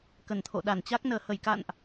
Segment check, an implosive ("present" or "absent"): present